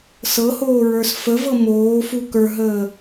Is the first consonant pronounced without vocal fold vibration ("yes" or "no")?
yes